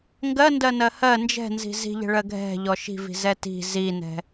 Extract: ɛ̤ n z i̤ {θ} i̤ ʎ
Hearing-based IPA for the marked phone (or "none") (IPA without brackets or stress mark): z